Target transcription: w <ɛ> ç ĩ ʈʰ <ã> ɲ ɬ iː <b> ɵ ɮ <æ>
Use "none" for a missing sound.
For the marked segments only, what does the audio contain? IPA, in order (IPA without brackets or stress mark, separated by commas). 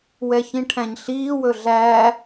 ɛ, æ̃, w, æ